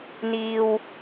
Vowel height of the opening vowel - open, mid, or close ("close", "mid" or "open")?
close